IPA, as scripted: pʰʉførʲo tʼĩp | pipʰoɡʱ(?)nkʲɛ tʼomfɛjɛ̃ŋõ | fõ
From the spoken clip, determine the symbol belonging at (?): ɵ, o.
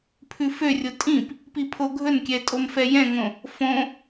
ɵ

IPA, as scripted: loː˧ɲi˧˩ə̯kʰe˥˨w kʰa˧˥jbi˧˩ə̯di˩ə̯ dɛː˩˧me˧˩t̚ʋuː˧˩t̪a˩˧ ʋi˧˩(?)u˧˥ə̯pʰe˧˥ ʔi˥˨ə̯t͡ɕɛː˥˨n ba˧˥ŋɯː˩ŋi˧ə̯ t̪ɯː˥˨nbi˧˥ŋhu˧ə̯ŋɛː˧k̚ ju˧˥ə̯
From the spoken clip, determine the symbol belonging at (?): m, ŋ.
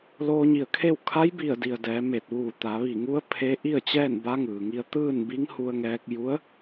ŋ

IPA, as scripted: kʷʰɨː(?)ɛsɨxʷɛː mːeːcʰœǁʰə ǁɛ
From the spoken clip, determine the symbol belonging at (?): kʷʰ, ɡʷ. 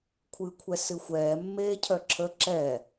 kʷʰ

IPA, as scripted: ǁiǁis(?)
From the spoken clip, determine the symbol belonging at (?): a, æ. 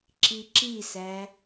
æ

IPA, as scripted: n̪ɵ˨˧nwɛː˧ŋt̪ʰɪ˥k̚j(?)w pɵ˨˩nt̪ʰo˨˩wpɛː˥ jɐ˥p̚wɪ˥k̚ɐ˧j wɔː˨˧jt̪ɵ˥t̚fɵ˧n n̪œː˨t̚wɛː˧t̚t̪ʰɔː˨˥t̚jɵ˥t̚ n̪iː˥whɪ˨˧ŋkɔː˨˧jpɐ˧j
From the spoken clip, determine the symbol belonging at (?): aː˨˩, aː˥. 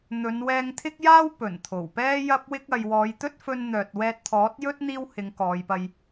aː˥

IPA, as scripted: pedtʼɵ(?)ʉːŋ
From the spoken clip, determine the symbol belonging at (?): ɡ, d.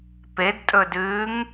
d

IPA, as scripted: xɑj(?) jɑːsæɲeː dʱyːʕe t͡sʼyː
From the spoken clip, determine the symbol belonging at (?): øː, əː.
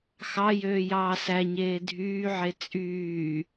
øː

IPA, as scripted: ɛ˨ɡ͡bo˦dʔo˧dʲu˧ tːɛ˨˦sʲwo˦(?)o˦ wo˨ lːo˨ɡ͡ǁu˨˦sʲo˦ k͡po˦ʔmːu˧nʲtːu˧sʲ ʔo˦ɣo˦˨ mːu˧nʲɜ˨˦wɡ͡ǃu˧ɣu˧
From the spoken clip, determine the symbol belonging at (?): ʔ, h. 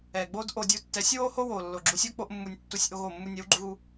h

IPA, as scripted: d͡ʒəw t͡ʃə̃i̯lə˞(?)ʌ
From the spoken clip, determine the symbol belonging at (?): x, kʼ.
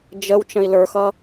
x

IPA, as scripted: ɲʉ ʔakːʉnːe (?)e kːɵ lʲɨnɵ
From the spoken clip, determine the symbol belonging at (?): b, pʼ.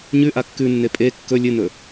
pʼ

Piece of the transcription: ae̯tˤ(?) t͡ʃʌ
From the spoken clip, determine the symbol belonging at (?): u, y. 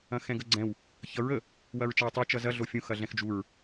y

